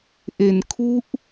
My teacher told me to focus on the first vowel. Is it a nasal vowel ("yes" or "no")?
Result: no